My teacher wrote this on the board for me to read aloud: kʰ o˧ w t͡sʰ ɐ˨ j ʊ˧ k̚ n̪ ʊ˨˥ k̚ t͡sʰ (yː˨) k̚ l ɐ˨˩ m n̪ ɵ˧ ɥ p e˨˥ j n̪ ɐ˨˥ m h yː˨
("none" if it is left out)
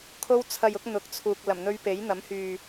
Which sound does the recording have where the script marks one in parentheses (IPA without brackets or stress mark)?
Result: uː˨